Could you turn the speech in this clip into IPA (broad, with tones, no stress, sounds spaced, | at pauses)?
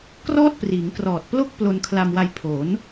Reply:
k r ɔː˥˩ t̚ p r iː˩˦ ŋ k r ɔː˨˩ t̚ p l o˥˩ k̚ p l o˧ n kʰ l a˧ m w a˧ j pʰ o˩˦ n